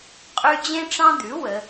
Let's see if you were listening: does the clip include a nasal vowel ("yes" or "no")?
yes